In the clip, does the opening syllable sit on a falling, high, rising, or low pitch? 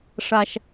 high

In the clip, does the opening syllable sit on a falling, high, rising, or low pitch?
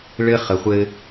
high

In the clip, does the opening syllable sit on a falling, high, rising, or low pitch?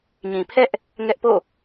low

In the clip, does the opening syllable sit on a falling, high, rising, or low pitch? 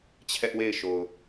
high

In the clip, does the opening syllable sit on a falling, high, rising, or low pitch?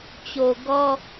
low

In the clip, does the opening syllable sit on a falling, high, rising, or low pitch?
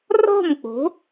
falling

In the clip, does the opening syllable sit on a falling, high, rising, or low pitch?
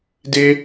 high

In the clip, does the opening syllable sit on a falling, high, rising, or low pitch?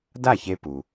falling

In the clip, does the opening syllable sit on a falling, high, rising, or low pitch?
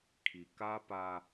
low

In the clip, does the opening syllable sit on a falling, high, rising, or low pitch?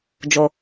low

